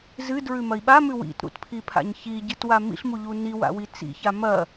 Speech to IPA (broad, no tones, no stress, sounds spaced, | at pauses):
z ɨ d ɹ ʉ m ɐ i̯ ɓ a m ʉ w ḭ t ɾ ṵ t pʰ i pʰ a̰ ɲ ç i ɟ ɨ t w a m ḭ ɬ m u ʎ u n i w a̰ w i t͡s ḭ ç a m ɐ